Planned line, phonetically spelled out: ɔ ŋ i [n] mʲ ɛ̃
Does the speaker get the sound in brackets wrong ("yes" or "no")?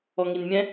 no